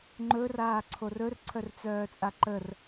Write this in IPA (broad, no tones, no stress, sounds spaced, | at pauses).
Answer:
ŋ͡ǃ ɵ r aː ǀʰ o r ɵ r ǀʰ œ r t͡s œː t͡sʼ a ǃ ə r